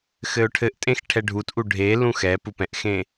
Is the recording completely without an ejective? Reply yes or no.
no